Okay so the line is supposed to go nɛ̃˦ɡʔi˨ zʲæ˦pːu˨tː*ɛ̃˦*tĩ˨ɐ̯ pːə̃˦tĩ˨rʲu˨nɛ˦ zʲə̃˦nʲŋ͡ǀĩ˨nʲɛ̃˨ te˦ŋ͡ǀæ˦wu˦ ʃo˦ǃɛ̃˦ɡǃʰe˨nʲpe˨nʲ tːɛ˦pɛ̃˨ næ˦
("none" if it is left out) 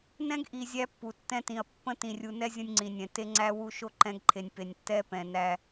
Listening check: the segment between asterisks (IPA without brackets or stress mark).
ɛ̃˦